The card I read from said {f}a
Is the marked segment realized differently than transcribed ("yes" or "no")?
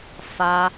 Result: no